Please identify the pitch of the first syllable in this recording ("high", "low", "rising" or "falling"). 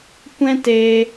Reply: high